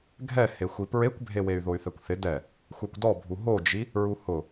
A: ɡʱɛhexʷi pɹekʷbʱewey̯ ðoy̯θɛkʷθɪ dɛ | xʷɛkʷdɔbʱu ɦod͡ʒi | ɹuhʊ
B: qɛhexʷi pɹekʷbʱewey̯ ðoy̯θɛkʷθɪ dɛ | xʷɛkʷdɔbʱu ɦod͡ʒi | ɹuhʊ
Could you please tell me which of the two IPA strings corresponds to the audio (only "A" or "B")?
A